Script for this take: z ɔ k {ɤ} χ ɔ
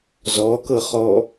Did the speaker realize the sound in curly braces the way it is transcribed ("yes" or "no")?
yes